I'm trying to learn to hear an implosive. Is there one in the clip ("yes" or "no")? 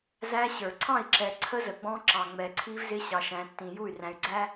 no